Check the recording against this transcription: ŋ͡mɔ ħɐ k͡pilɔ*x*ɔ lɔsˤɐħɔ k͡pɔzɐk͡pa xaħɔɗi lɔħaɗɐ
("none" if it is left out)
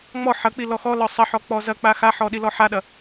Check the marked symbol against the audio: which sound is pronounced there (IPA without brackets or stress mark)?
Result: x